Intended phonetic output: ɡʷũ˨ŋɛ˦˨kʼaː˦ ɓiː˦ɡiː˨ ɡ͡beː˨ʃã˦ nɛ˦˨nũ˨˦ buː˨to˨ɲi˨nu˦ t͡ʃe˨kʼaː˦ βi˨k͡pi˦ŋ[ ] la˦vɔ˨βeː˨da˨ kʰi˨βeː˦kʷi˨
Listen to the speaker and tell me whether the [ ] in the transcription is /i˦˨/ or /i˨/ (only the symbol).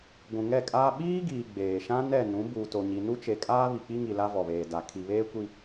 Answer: i˨